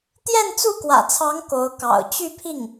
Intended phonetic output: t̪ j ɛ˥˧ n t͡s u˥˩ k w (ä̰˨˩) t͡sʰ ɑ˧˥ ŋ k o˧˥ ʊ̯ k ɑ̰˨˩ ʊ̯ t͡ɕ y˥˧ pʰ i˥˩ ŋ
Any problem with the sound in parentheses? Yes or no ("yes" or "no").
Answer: no